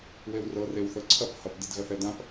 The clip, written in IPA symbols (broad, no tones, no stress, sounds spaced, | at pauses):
w e w r ɤ r e w θ ɤ ǀʰ ɐ p h ɐ p d i d ɣ ɐ θ ɛ d ã p